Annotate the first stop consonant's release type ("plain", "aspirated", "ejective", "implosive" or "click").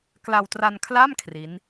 plain